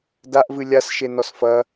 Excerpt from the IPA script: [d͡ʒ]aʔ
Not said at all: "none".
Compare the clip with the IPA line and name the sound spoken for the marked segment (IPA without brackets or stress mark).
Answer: d